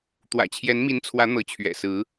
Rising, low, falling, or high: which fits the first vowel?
low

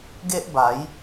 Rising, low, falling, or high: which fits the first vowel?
high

